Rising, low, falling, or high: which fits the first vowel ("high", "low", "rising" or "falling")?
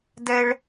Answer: high